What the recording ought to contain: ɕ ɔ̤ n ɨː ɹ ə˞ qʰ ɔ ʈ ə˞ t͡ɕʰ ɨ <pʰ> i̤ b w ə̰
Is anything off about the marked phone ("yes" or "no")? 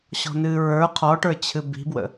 yes